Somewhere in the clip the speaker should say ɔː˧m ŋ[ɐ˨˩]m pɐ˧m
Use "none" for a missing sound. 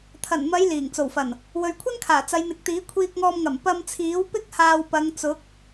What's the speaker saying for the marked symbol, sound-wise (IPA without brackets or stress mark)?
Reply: ɐ˨˩